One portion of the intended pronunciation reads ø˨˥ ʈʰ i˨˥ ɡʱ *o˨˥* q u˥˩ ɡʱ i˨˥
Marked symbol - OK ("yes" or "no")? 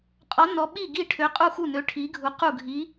no